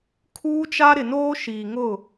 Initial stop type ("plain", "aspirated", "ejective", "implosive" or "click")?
aspirated